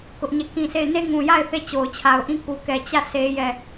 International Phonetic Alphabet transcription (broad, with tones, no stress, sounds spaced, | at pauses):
k ʊ˦ ʔ ɲ ɛ˦˨ k ĩ˦˨ sʰ e˦˨ ɪ̯ n e˦ ŋ ũ˨ j a˦˨ ɪ̯ θ e˦˨ t͡ɕ o˨ ʊ̯ t͡ɕʰ a˨ ʊ̯ ʔ ĩ˦ k u˨ k ɛ˨ t͡ɕ ä˦˨ s e˦ j ɛ˦˨